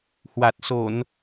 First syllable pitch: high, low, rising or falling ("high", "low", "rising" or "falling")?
low